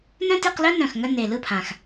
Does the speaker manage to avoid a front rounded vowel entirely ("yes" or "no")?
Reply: no